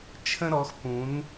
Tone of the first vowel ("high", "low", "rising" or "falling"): high